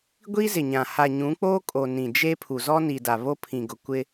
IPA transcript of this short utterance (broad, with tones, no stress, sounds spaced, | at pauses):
ɡʷ i˦ z ɪ˨ ɲ ã˨ h a˨ ɲ ũ˨˦ k͡p oː˦ kʼ o˨ n ĩ˨ d͡ʒ e˦ pʰ u˨ z ɔ˦ n i˨ d a˨ β o˦ pʰ ĩ˨ ɡ ʊ˨ kʷ ɪ˦